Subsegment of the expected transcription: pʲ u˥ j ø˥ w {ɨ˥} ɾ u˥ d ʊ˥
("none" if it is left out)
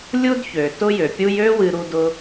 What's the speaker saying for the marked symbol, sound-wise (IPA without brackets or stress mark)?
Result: ɨ˥